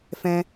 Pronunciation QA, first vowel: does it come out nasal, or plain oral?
nasal